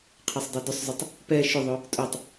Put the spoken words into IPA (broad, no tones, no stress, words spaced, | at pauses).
qʰɛsˤdˤɛdʏsˤzˤʏtˤ | pɛ ʃʏðˤʊ | tʼʊtˤ